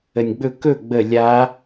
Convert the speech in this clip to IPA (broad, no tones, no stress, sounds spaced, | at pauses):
ə nʲ ɡ͡b ɵ k ɵ ɡ͡b ə lʲ a